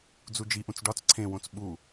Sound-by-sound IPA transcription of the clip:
d͡z u d͡ʒ i ʔ ũ t͡s ɖ ɒ t͡s ǀʰ ẽ w õ t͡s ɓ u

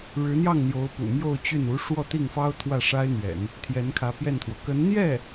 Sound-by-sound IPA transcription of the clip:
ɻ ɻ̩˧˥ n̪ j ɑ˥˩ ŋ n̪ j o˧˥ ʊ̯ p ṵ˨˩ m j o˥˧ ʊ̯ t͡ɕ y˥˩ n u˧˥ ʂ w ɔ˥˧ t̪ i˥˩ ŋ f ɑ˥ ʊ̯ t̪ʰ w ä˥˩ ʂ a˥ ɪ̯ n̪ ɥ ɛ̰˨˩˦ n | t̪ʰ j ɛ˧˥ n kʰ ä˧˥ p j ɛ˥˩ n t̪ʰ w ɔ˩ k ə˧˥ n n̪ j ɛ˥˩

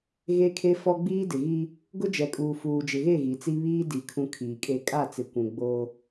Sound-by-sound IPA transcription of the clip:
ɣ e˦ kʰ e˦ f ɔ˦ ɡ͡b iː˦ d ɪ˨ ɣ i˦ | ɡ ʊ˦ d͡ʒ ɛ˨ kʼ uː˨ f uː˨ d͡ʒ ɪ˨ ɣ e˦˨ ɣ i˨ t͡s i˦ β iː˦ d i˨ kʰ ũ˨ kʰ iː˨ kʼ e˦ kʼ a˦˨ t͡s ɪ˨ kʷ ũ˨ ɡ͡b o˦

